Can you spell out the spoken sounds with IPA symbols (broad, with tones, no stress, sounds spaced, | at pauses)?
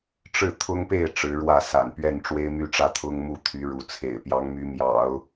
ʈ͡ʂ ɻ̩˥˩ t̪ʰ ʊ˥ ŋ p e˥˩ ɪ̯ ʈ͡ʂ ɻ̩˧˥ ɻ w ä˥˩ s a̰˨˩ n p ɥ ɛ˥˩ n ʈ͡ʂ w e˥ ɪ̯ m y˥˧ ʈ͡ʂ ä˥˩ t̪ʰ ʊ˥ ŋ m u˥˩ t̪ʰ y˧˥ ɻ u˧˥ t͡sʰ ḛ˨˩ ɪ̯ p j ɑ˧˥ ŋ m y˧˥ m j ɑ̰˨˩˦ ʊ̯